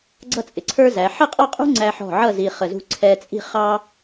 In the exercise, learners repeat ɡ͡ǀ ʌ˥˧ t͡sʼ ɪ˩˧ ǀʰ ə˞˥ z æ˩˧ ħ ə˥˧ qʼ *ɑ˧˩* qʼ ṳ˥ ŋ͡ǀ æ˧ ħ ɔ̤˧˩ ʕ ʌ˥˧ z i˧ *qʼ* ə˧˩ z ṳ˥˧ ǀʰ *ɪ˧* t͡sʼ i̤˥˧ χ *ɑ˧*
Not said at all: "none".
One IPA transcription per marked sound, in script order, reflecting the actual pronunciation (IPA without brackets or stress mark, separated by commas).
ɑ˥˧, χ, ɛ˧, ɑ˥